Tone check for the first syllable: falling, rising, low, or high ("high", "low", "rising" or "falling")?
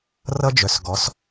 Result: high